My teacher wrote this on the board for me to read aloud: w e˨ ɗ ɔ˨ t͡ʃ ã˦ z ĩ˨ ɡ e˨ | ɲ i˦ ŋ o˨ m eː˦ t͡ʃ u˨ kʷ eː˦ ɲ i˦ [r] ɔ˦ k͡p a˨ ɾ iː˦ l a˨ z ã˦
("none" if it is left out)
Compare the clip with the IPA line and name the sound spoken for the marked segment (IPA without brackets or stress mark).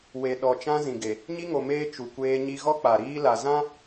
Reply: ɣ